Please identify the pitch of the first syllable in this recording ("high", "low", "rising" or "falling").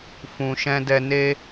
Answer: low